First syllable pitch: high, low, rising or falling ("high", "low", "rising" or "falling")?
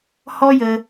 high